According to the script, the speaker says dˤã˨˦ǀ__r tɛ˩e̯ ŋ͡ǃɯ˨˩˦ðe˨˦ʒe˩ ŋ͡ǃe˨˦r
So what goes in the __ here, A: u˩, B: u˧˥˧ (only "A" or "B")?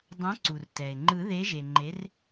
A